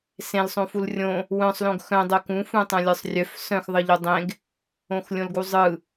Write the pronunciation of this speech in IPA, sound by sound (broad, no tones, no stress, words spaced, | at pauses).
sẽlsˤõ fulrʲõ | wœ̃sˤlõɡ xœ̃dˤœ kũ fũtˤœ̃lʲə˞sˤrʲœf sœ̃xðˤɯʎu dˤẽɡ | õxlʲõlɡuzˤɯ